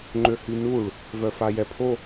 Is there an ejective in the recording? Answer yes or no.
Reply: no